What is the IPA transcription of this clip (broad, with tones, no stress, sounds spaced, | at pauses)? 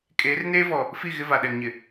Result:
kʼ eː˨˦ r n eː˦ v ɔ˨ | f i˦˨ ɣ ɪ˦ v a˨ ɗ ɛ˨ ŋ ɲ ɪ˨